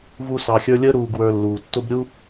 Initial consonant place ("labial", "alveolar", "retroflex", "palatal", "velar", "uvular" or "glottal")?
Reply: labial